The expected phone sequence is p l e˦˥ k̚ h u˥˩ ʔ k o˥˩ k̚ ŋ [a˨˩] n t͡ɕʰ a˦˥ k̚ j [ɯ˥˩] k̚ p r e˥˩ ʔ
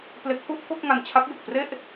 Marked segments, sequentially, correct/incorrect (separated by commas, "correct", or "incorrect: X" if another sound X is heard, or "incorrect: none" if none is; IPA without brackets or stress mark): incorrect: a˧, incorrect: ɯ˨˩